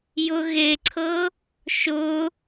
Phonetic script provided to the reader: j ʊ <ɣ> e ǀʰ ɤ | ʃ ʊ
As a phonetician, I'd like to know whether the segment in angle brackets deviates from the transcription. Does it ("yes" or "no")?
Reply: no